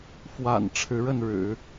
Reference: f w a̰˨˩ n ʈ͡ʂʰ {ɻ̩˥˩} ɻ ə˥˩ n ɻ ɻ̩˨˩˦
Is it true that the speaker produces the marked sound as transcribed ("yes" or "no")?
no